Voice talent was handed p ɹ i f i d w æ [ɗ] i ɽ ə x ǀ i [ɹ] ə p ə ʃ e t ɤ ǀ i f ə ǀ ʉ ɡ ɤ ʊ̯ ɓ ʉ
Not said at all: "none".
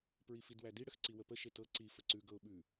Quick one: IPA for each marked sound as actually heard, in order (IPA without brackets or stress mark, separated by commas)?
d, w